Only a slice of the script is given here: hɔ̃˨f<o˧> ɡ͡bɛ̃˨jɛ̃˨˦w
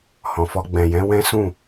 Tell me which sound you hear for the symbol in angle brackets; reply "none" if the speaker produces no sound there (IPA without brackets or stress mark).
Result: ɔ˧